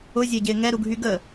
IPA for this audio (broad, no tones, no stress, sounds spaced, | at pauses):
ʊ zʲ e ɟ ɪː ŋ ɛ ɾ u ɡʱ y ɡ ə